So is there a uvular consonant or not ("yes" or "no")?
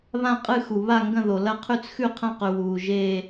yes